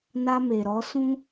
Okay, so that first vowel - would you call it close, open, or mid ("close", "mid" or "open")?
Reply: open